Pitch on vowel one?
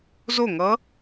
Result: falling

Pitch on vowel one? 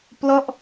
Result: falling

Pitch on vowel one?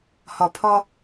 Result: low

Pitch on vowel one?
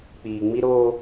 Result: low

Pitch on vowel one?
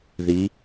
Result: rising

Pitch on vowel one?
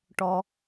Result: low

